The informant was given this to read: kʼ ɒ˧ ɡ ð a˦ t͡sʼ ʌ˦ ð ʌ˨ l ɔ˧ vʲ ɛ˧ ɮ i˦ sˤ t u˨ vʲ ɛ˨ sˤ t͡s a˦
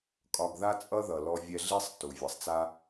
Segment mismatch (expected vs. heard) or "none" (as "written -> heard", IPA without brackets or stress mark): none